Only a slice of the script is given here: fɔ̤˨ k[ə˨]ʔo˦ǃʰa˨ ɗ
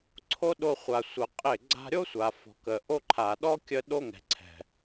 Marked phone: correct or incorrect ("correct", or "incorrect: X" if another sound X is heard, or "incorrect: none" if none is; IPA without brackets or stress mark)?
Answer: correct